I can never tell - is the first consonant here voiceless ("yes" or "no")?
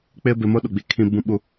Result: yes